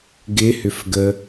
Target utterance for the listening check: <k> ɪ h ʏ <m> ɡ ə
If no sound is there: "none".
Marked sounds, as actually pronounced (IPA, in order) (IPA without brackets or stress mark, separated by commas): ɡ, f